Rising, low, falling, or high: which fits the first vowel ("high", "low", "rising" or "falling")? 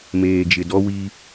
low